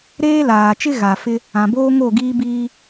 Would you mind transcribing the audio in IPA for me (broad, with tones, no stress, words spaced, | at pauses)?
ɾeː˦laː˨ t͡ʃɪ˦ ɣa˨fɪ˦ | ã˨boː˦ŋo˦˨ɡiː˦ biː˦